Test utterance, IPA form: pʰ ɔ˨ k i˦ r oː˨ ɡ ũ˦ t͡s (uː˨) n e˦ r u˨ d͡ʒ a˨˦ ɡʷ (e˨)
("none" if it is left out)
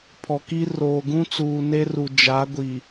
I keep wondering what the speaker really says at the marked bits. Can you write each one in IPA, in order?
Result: uː˨, i˨

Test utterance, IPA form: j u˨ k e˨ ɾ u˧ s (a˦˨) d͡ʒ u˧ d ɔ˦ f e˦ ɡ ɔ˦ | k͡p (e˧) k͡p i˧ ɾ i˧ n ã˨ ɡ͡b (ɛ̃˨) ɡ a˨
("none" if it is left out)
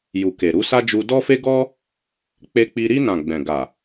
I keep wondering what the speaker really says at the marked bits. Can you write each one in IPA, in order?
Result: a˦, e˧, ɛ̃˨

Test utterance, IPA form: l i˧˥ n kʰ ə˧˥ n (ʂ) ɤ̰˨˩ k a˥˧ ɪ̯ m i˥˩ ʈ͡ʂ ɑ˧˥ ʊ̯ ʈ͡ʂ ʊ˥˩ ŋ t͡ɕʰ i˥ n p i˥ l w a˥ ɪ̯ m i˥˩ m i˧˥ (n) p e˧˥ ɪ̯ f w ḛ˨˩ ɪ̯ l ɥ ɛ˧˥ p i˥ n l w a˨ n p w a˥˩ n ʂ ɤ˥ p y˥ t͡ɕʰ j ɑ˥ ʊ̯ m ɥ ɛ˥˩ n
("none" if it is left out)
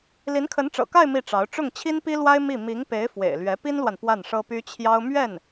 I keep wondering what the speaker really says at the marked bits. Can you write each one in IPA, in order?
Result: ʈ͡ʂ, ŋ

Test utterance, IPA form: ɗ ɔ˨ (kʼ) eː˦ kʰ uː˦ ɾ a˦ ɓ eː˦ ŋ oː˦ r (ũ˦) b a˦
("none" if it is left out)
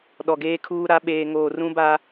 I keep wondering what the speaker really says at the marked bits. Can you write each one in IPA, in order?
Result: ɡ, ũ˦

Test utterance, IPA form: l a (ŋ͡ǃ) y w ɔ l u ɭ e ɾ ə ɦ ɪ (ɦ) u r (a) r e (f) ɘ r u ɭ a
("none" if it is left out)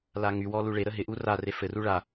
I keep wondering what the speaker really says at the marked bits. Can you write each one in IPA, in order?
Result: ŋ, ʔ, a, f

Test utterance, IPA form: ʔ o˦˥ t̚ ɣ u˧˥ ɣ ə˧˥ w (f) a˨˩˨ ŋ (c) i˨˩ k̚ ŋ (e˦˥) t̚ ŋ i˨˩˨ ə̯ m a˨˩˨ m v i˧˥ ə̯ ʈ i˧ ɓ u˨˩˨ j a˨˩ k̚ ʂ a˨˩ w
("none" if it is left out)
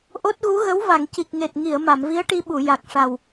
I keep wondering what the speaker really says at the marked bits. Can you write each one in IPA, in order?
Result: v, c, e˨˩

